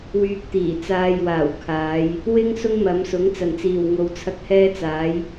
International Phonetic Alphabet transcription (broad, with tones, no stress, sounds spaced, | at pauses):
w yː˧ k̚ t̪ iː˨˩ t͡s aː˧ j w aː˨˩ w kʰ aː˨˧ j | w ɪ˥ ŋ s ʊ˥ ŋ m ɐ˨˧ m s ʊ˨˥ ŋ t͡s ɐ˨˩ n t͡s iː˨˩ w ŋ o˨ w t͡sʰ ɐ˧ k̚ h ɛː˥ t͡s aː˨˥ j